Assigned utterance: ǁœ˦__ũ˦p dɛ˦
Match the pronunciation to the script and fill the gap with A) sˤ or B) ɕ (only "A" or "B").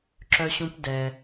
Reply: B